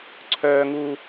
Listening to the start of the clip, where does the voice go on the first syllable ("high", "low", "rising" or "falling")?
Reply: high